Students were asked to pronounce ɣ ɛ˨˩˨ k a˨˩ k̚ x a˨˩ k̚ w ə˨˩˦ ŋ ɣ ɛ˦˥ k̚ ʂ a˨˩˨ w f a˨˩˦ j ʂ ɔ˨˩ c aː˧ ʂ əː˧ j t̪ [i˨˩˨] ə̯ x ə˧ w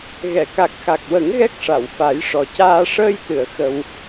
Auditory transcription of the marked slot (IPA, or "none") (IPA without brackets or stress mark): ɨ˨˩˨